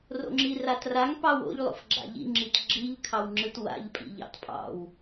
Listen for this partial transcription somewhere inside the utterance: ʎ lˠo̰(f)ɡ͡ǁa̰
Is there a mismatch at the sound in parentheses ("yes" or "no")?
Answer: no